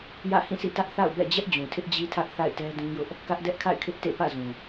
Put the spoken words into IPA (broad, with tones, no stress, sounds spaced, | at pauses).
j ä̰˦˨ h ĩ˦˨ s ḭ˦˨ t ä˦ ʔ θ a̰˦˨ ʊ̯ b ɛ̰˦˨ d͡ʑ ɛ˦ ʔ d͡ʑ ũ˨ tʰ ɪ˦ ʔ d͡ʑ i˦ tʰ ä˦ ʔ θ a̰˦˨ ɪ̯ t ɛ˦ d ũ˦ j ʊ˦ ʔ | k ä˦ ʔ d ɛ˦ ʔ kʰ a̰˦˨ ɪ̯ kʰ ɪ˦ ʔ t ḛ˦˨ p ä̰˦˨ z ũ˨